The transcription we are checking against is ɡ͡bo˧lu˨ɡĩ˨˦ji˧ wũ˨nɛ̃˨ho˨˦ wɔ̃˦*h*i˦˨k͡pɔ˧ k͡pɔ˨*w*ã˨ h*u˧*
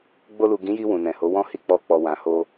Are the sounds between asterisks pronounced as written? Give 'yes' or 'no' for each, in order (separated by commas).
yes, yes, no